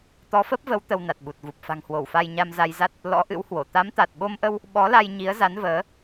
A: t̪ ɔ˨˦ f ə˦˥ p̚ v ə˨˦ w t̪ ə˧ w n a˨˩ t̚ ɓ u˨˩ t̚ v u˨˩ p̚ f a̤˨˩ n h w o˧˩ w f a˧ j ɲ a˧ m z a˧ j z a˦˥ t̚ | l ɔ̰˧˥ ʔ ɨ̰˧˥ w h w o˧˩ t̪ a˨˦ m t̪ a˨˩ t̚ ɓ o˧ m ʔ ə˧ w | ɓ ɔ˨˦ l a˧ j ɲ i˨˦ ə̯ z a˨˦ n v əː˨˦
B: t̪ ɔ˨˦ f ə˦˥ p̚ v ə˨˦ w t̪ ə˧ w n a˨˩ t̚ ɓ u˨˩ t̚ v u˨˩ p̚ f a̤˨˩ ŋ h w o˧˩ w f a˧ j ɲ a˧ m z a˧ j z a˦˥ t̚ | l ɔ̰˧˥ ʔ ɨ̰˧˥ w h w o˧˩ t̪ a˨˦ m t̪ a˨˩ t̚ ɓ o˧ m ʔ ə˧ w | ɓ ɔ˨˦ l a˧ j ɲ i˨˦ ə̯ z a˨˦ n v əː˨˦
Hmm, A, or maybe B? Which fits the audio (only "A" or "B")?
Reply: B